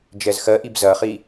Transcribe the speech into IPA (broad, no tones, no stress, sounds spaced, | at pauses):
d͡ʒ ɛ z x ɜ ʔ i b z ɐ χ i